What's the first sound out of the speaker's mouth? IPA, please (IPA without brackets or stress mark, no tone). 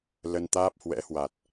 l